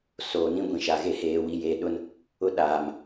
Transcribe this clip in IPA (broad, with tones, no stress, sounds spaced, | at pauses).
s oː˨ n ĩ˦ ɡʷ ĩ˨ ʃ a˨ ɣ e˦ h eː˨ w i˨ j e˨ ɗ ʊ˦ n | ʊ˦ ɗ aː˨ m